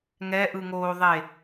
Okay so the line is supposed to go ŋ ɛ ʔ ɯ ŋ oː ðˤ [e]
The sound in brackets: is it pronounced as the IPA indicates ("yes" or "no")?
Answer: yes